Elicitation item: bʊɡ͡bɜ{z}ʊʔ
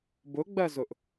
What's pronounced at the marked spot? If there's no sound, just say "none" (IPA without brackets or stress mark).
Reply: z